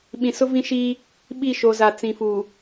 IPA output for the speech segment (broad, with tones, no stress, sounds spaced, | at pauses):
ɓ ĩ˨ s ʊ˦ v ĩ˦ ʃ iː˦ | ɓ i˦˨ ʃ o˨ z a˨ t͡s ĩ˨ f uː˨